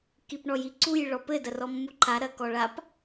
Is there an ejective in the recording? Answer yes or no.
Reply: no